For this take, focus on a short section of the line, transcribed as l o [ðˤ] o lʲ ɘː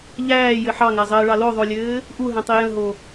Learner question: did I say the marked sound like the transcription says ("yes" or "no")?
yes